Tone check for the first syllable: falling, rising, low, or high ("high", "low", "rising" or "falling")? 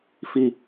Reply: high